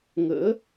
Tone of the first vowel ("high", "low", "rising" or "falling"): rising